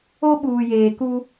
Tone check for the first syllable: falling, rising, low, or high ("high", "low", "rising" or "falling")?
high